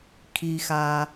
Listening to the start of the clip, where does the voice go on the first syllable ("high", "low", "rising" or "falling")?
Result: low